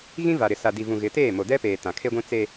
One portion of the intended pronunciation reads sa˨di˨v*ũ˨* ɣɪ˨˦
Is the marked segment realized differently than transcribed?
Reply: no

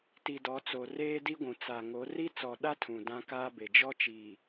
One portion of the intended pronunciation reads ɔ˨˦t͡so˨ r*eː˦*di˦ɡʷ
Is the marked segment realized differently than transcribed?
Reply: no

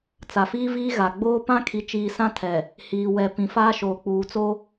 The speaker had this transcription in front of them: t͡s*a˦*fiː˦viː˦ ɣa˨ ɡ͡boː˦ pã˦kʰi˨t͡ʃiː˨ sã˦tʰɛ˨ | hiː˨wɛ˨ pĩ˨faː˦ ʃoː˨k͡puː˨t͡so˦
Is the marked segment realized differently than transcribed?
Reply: yes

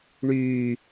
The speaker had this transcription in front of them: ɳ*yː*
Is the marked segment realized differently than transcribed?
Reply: no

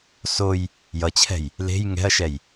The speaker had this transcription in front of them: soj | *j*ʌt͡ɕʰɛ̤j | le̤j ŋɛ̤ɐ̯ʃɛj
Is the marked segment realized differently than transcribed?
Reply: no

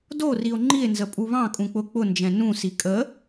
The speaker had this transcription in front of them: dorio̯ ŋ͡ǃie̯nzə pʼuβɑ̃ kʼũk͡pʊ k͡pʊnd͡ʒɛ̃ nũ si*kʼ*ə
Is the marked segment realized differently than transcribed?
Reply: no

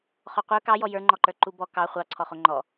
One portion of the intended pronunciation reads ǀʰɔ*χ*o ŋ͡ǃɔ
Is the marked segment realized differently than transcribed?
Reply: no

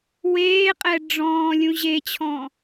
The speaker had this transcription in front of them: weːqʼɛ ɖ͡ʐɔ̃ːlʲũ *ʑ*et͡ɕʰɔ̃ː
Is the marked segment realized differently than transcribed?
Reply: no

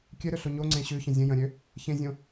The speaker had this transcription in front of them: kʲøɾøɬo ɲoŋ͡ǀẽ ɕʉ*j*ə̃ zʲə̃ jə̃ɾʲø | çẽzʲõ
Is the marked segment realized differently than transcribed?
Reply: yes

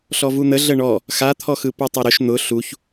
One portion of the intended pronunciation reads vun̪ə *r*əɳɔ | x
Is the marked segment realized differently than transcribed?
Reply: yes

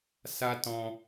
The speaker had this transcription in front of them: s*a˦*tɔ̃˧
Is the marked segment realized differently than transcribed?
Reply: no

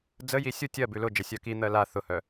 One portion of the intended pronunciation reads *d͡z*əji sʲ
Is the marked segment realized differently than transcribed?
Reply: no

